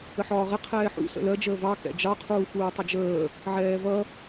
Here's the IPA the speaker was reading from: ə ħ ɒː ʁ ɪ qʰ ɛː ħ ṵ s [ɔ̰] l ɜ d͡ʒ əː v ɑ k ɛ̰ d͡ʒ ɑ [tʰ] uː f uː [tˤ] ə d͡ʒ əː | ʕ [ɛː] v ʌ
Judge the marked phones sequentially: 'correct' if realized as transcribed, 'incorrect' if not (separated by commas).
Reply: incorrect, incorrect, correct, correct